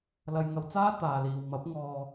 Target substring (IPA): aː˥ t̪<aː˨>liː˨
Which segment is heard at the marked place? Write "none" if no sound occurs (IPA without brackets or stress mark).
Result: aː˨